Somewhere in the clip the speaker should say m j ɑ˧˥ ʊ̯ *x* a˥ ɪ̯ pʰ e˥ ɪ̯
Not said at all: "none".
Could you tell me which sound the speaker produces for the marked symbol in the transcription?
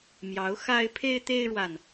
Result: x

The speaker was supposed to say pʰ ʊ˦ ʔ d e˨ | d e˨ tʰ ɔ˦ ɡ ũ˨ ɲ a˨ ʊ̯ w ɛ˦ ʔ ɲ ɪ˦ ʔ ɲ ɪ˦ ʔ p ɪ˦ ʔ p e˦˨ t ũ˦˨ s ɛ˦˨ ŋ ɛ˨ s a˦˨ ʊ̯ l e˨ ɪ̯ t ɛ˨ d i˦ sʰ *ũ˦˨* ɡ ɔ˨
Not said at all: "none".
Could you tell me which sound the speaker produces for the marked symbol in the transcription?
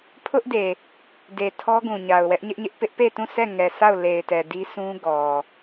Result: ũ˦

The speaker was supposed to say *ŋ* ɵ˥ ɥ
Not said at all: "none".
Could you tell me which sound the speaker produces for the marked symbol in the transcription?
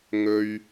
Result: ŋ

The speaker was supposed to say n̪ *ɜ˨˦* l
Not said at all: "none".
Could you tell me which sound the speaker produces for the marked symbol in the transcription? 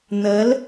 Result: ɜ˨˦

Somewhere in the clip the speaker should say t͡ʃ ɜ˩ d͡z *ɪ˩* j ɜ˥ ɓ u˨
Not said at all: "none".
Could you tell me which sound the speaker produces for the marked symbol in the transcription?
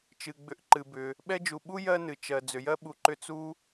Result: ʏ˩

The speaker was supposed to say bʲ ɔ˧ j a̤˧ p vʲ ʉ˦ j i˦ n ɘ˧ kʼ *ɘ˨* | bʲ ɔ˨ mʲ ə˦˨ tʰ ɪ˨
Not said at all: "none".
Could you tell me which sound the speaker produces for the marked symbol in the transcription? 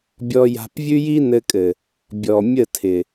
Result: ɘ˨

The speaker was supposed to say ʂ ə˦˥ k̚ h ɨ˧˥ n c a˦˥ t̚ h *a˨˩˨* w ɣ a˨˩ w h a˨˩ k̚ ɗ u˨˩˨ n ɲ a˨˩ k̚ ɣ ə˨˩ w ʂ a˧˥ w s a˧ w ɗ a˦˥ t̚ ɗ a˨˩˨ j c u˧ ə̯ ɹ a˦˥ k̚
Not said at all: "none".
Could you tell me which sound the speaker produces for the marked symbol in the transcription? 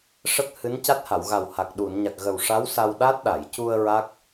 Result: a˨˩˨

